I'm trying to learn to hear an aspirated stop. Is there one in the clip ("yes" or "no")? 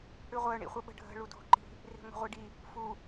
no